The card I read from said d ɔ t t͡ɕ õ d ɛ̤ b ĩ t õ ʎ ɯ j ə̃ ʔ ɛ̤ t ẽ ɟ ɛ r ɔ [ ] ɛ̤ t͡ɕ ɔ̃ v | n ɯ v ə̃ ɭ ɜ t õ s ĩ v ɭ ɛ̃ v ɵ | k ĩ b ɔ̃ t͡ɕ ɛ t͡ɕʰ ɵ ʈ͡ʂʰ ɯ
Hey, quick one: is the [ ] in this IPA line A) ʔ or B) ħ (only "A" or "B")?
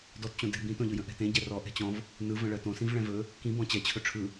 A